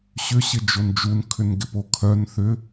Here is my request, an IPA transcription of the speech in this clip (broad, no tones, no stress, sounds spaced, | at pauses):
ɕ ʏ ɕ ɪ d͡ʒ o n d͡ʒ u n kʰ ʏ n ɡ ɪ p o kʰ œ n θ ʏ